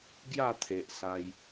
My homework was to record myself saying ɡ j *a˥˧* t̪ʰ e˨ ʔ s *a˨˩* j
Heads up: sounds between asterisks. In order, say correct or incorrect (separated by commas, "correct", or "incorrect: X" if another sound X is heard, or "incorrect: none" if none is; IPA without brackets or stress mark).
correct, incorrect: a˧